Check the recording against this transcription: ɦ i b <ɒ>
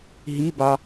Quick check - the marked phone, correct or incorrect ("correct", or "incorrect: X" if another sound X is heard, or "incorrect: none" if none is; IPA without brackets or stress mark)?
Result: incorrect: ɑ